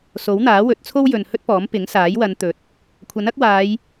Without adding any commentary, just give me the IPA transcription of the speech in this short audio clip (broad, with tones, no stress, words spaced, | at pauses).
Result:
so˨˥wn̪aː˨˥ wɵ˨˥t̚ t͡sʰo˥w jɵ˨n hɵ˥t̚pɔː˨˥m pɪ˨˥ŋsaː˨˥j wɐ˨˧nt̪ɵ˨˥t̚ | kʷʰɐ˨˥nɐ˥k̚waː˨˧j